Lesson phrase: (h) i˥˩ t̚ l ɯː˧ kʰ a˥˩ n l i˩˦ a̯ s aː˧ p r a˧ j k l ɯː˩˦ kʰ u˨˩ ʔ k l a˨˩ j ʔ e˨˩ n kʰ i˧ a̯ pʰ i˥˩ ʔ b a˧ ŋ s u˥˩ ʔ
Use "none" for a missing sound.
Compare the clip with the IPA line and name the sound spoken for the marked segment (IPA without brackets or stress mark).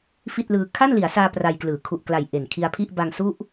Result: f